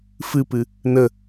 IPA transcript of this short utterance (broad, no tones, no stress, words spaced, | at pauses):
fɨpɨ | nə